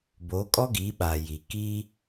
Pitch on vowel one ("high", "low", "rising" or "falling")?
rising